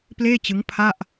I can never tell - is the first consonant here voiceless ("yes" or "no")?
yes